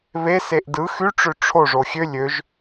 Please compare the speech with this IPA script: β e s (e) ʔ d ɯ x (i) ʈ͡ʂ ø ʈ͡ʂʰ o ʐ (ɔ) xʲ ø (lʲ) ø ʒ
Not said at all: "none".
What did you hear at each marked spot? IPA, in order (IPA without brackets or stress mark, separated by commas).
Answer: e, y, o, lʲ